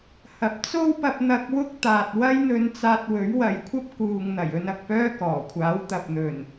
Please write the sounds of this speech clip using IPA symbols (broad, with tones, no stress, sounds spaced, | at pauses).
h ɐ˨ p̚ t͡s o˥ w p ɐ˧ p̚ n̪ ɐ˧ k̚ w ʊ˥ k̚ t̪ aː˨ t̚ w ɐ˥ j n̪ ɵ˧ n t͡s aː˧ t̚ w ɵ˨˥ ɥ w ɐ˨ j kʷʰ ɐ˥ p̚ k uː˨ ŋ n̪ ɐ˨˩ j ɵ˧ n ɐ˨ k̚ p œː˥ k ɔː˨˩ kʷʰ aː˨˥ w t̪ ɐ˨ p̚ n̪ ɵ˨˩ n